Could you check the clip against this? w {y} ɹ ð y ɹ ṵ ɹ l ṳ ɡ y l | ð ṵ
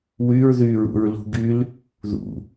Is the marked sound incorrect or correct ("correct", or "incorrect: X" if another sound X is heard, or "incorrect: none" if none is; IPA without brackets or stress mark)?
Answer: correct